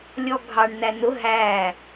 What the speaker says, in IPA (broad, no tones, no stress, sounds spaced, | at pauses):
lʲ ɔ ɡʱ ɑ ɳ n æ n ʊ ɦ æ